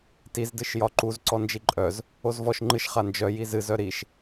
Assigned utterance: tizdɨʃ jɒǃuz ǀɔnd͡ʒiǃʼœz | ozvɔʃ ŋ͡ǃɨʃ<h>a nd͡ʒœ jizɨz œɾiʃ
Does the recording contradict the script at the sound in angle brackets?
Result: yes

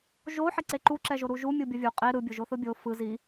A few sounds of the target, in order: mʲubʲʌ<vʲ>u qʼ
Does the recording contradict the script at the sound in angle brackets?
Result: no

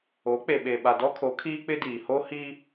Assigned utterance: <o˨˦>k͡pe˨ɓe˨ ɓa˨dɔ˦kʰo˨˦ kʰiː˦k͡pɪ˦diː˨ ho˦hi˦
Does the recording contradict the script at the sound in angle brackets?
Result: no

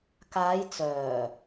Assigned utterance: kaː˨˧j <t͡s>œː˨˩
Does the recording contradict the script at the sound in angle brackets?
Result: no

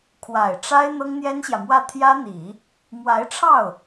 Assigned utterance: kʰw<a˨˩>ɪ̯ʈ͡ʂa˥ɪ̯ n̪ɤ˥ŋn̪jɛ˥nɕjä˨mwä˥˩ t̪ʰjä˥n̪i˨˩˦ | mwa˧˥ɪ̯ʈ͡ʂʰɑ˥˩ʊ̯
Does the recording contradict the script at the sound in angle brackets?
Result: no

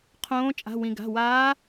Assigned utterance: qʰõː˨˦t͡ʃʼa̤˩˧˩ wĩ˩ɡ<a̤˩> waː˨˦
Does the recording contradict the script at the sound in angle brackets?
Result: yes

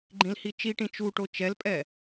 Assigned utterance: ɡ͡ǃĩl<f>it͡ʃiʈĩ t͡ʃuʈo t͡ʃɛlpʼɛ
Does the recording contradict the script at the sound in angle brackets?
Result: yes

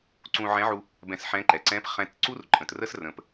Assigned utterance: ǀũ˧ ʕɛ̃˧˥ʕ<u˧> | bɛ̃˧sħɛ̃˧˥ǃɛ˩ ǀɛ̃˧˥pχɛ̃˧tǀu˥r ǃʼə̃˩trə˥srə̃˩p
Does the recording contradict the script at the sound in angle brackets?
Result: no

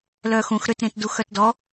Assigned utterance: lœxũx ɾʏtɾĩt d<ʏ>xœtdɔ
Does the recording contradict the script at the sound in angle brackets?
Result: yes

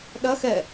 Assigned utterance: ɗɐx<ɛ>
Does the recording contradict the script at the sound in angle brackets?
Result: no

